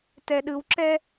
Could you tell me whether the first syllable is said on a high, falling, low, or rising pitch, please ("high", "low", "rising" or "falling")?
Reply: low